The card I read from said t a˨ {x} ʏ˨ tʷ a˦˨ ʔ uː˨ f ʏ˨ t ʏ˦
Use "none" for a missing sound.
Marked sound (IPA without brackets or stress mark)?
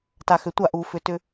x